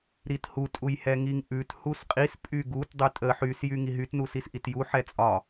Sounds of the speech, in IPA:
ɾithu tʼujhɛŋiŋʔʉt husqʼis pʼyɡut dˤytʼə ħys jyŋiɦyt nusisʔitju ħɛt͡sʼɒ

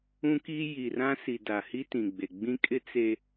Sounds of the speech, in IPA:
ũ˦ki˦ ji˨rã˦si˨ da˨hi˦ tĩ˨ɡ͡be˨ ɡ͡bĩ˦kʼɪ˦ t͡se˨

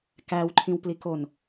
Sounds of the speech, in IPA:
kæwǃʰĩwplikon

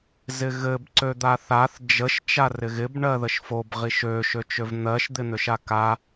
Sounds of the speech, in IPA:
zɪɣɘb ǀød̪aθaθ d͡ʒəʃ t͡ʃarɪɣɪb ɳɜðəʃfob ʁiʃø ʃøt͡ʃøvn̪ɜʃ d̪ɪn̪øʃaka

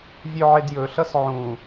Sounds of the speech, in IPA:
vʲøʕedjɵ ɬʌsʕũ

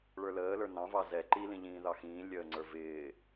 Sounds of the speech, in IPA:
ɭə˞ləːlə˞ nɑ̃ vɑzɛ ǃilĩʎĩː ðɑxĩː lʲəːŋ͡ǀə˞vɪː

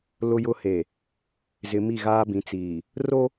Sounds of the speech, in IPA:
lʊ˨jʊ˨ he˨ | zɪ˨mi˦˨ɣaː˦bĩ˨˦ t͡siː˨ | ro˦

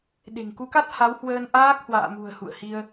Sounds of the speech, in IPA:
ɗe̤˨˩ŋku˨˦ka˦˥t̚ ha˨˦whwəː˧nʔaː˦˥k̚ hwa̰ː˧˨mṳ˨˩ə̯ hṵ˧˨ə̯hi˧ə̯

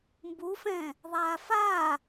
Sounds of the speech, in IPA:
mbufɛ̃ | ðˤafa

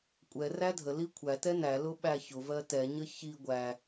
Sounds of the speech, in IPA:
kʷʼɛ rædʱəli kʷʰætɛ nælʊ ɓæçʊvɜ tɛɲə çi ɡʷæ

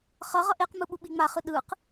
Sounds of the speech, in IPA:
χʌ ʁʌʔeqmɯ ɓuɓiŋ͡maχɯ ɗɯq

